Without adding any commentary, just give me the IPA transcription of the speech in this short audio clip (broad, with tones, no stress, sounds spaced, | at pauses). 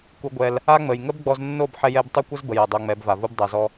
k u˧ ɡʷ ɛ˧ l | a˦ ŋ͡m ə˨ j ŋ ə˦ b ɡ͡b ɔ˧ z nː o˦˨ b ħ ɛ˦ j ɛ˦ b tˤ œ˦ kʷ ə˦ z b ə˨ j a˨ dˤ o˧ ŋ͡m ɛ˨˦ b v a˨ v u˦ b dˤ a˧ z ɔ˦